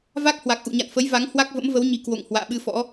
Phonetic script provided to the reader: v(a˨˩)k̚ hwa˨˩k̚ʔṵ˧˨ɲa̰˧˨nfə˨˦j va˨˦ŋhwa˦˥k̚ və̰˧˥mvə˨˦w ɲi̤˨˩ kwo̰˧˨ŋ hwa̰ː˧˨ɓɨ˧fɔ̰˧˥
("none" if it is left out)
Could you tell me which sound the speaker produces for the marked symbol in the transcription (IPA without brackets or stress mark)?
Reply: a˦˥